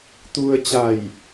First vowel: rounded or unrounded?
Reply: rounded